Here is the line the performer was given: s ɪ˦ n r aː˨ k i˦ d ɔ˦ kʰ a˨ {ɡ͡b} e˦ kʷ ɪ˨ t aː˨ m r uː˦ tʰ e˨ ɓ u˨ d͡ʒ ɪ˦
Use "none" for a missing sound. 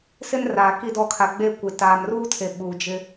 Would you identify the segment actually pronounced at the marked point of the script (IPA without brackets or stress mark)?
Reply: ɡ͡b